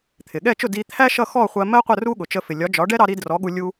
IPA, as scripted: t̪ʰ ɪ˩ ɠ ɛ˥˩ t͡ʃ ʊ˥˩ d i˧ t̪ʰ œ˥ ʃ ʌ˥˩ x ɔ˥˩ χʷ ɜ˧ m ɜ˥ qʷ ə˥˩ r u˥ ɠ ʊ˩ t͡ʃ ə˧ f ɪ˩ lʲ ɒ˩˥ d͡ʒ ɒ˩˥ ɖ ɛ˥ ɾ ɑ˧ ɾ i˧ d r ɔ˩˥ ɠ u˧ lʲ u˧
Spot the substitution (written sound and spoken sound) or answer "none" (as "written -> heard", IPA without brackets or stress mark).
œ˥ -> æ˥